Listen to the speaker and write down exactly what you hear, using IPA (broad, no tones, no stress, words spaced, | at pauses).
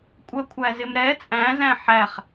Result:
kʷʼɜkʷʰæzɪmɾɛ t͡sʼæ̃zæ̃ ħæχ